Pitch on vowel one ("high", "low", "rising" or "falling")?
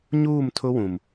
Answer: falling